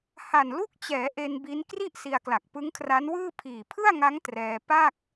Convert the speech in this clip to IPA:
h a˨˩ n l u˥˩ k̚ t͡ɕ ɛː˩˦ ʔ e˧ n b i˦˥ n k r i˥˩ ʔ s i˧ a̯ k l a˨˩ k̚ p ɯ˦˥ ŋ kʰ r a˦˥ n w ɯː˥˩ pʰ iː˨˩ pʰ ɯ˥˩ a̯ ŋ a˦˥ ŋ t r ɛː˧ p a˥˩ k̚

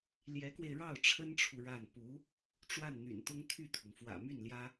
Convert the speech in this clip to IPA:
l j ɛ˧˥ k w e˧ ɪ̯ ɻ ɑ˥˩ ʊ̯ ʈ͡ʂʰ ə˥ n ʈ͡ʂʰ u˨ ɻ a˥˩ n p u˧˥ | ʈ͡ʂ w a˥˩ n n̪ y̰˨˩ n t̪ ʊ˥ ŋ t̪ʰ y˥˩ t̪ʰ ʊ˩ ŋ f w ä̰˨˩ m y˥˩ n l j ä˥

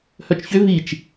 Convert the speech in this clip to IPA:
h œ t͡ʃ ç ʏ v i t͡ʃ

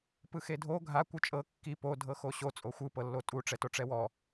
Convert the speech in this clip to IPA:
p ɯ x e dʱ o ɡʱ a kʷ ɯ t͡ʃʼ ɤ kː i p o dʱ ɤ x o ɕ o t͡sʼ o xʷ ɯ p ɤ lː o tʼ u ʈ͡ʂ ɛ t o ʈ͡ʂ ɛ w ɔ

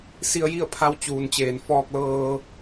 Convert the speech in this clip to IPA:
s i˧ ə̯ j i˥˨ ə̯ pʰ a˧˥ w t͡ɕ uː˩ n t͡ɕ eː˩ n f ɔː˧ k̚ l ɤː˧

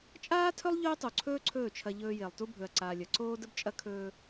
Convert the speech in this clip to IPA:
t͡ʃʼ aː˦ tʰ ɵ˦ lˠ ʎ ɵː˦ tˤ u˨ ǀʰ ɵː˦ ǀʰ ɵː˦˨ t͡ʃʰ ɐ˧ ʎ ɵː˧ j e˨ lˠ t u˧ bʱ ɵ˨ ɐ̯ ǀ aː˨ lʲ ɐ˨ ǀ oː˦ d ə˦ b t͡ʃʼ ɐ˦ kʰ ɵː˧

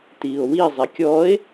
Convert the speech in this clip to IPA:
t iː o̯ w i zˤ i kʲ ɔː e̯

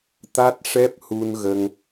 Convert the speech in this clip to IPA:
t̪ a˦˥ t̚ ʂ ɛ˦˥ p̚ h u˧ n ɣ ə˧ ŋ

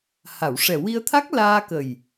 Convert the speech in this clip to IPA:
h a˨˩˨ w ʂ ɛ˨˩ w i˧ ə̯ t̪ʰ a˦˥ k̚ l aː˧ k ə˨˩ j

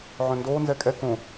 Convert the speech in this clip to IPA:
ʕ œ̃ n d oː n z ɛ kʼ ɛ k õ

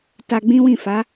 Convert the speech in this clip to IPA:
t a˧ ɡ͡b ĩ˦ w ĩ˦˨ f a˨˦

